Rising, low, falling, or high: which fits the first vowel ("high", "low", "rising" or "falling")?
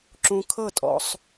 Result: high